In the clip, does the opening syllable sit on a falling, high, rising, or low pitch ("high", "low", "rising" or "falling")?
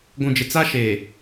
low